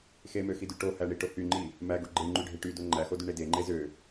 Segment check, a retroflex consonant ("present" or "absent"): present